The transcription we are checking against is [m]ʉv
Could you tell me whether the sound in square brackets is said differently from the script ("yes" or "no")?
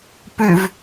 yes